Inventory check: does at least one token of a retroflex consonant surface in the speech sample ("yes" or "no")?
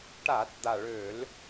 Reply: yes